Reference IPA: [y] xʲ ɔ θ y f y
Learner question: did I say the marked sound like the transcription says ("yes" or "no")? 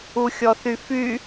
no